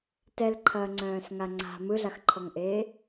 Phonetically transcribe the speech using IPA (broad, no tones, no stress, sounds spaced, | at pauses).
t ɛ l ǃʰ ɐː ŋ͡ǀ œ̃ː s ŋ a ŋ͡ǀ a̤ m ɯ ɮ a x ǃʰ ɔ ŋ ʔ eː